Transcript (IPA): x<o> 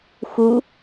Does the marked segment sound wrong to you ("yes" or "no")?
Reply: yes